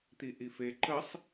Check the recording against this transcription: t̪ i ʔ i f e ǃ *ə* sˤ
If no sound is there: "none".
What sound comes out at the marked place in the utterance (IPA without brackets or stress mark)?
ə